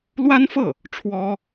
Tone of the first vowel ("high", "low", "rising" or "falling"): high